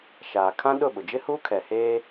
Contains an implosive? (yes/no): yes